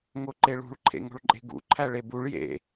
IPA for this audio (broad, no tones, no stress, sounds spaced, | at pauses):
ŋ o ǃ e ɭ ṳ ɭ ǃʰ ḛ ŋ o̤ ɭ ǃʼ e̤ ɡ ṵ ǃʰ æ ɭ e b u ɭ j ḛ